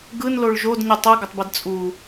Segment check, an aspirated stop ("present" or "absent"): absent